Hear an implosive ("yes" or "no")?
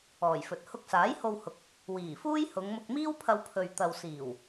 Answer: no